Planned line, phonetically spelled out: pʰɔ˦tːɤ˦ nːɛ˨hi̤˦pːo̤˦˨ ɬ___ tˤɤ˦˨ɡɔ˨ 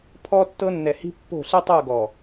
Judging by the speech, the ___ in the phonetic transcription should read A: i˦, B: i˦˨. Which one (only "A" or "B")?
A